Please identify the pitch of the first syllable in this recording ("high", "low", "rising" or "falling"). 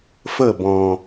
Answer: falling